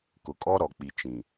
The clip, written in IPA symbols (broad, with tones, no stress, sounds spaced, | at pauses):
k ʊ˨ kʼ ɔ˦ ɾ ɔ˨ k͡p i˨ t͡ʃ ĩ˨